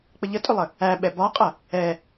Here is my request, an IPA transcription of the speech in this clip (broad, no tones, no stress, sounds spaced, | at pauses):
k͡p ə ʎ ə tʼ ʏ lˠ ə | æ ɓ ɛ b ɒ qʼ ɐ | ɛ